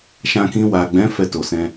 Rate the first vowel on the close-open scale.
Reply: open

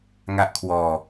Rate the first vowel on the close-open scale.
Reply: open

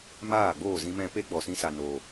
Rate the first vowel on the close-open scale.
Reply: open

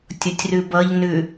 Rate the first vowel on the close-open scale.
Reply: close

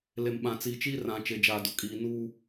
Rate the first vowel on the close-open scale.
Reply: mid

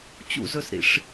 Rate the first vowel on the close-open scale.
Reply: close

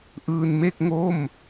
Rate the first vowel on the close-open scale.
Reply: close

